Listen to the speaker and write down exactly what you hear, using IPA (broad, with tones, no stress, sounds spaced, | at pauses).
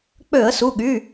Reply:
k͡p ø˧˩˧ ə̯ s u˩˧˩ ɠ y˩˧˩